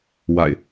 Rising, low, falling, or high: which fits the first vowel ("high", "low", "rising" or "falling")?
low